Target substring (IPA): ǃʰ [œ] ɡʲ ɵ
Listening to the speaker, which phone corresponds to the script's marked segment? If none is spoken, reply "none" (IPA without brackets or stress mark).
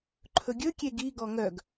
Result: ɵ